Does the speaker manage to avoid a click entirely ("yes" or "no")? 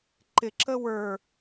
no